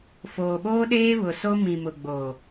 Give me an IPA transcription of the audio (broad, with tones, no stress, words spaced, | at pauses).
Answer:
foː˨ɓoː˦ɗeː˦ βʊ˨so˦ mĩ˨mʊ˨ɡ͡bo˨